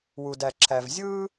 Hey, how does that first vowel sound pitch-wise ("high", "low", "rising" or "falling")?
low